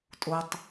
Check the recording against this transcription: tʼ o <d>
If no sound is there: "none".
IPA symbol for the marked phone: tˤ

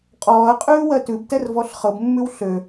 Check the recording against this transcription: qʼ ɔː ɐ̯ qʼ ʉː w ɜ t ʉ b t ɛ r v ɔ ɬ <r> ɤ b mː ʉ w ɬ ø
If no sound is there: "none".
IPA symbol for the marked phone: χ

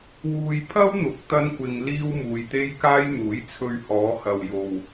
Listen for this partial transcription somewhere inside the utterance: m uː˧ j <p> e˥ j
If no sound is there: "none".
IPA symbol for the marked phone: t̪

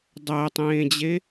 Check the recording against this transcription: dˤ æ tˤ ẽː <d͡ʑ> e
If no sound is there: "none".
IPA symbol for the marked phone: d͡ʑ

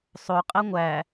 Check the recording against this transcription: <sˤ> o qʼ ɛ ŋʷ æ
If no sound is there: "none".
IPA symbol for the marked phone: sˤ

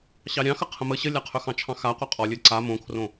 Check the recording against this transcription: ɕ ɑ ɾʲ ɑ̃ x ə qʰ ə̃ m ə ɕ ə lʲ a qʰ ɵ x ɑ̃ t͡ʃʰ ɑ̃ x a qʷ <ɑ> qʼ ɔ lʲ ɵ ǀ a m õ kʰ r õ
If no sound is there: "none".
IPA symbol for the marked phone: ɑ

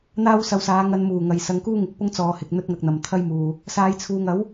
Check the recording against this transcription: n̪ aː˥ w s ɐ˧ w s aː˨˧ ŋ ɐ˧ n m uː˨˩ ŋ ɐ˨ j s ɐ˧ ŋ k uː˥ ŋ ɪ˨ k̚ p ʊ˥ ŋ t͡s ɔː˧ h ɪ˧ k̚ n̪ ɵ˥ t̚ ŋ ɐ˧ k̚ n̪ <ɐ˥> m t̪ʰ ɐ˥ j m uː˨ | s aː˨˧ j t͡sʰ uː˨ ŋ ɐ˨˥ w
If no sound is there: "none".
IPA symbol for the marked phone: ɐ˨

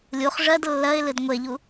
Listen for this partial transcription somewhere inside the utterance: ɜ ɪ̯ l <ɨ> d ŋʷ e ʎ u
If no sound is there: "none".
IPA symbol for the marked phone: ɨ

